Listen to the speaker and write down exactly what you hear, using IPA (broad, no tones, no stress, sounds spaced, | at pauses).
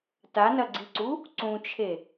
t a n ɐ ɡ͡ǀ i ǀ u | ǀ ũ t͡ʃʰ e